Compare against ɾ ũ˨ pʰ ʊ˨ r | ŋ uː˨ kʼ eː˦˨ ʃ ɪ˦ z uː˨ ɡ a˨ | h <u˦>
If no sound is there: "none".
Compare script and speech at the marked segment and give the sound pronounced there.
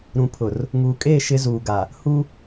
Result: u˦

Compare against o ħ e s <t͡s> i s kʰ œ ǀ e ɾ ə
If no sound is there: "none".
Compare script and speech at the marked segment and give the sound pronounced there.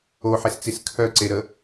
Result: t͡s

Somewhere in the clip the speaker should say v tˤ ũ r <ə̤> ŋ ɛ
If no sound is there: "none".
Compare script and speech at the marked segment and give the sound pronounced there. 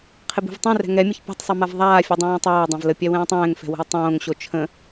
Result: ɛ̤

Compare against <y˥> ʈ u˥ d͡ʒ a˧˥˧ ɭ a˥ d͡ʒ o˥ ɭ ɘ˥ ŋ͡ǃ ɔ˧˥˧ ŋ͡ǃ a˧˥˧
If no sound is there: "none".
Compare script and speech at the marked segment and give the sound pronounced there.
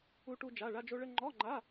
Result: u˥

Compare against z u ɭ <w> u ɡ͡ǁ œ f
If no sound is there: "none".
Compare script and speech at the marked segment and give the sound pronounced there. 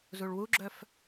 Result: w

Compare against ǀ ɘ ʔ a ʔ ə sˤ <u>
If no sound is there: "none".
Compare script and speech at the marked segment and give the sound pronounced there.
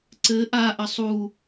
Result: u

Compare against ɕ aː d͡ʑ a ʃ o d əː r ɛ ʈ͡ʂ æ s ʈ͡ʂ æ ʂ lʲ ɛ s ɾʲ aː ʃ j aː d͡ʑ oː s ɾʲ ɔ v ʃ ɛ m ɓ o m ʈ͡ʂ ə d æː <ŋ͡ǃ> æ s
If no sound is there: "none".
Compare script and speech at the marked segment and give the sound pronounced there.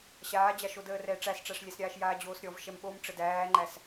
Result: ŋ͡ǃ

